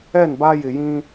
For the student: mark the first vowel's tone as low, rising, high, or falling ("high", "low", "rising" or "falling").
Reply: falling